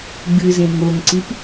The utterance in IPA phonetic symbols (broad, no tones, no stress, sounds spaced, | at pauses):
ɡ͡b ɨ z ẽ ŋ o ŋ ǀ i p